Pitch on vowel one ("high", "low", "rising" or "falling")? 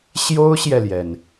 high